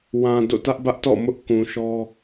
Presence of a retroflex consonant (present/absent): absent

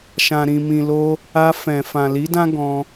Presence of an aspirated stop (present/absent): absent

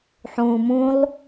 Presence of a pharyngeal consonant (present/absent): present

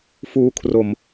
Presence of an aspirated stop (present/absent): present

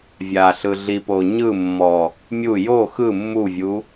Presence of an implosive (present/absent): absent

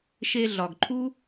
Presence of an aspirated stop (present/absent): present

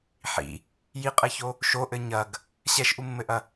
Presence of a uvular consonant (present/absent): present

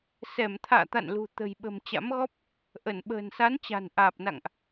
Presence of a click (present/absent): absent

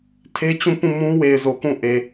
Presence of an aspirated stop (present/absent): present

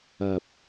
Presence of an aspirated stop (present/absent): absent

